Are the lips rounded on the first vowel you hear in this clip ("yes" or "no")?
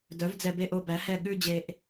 yes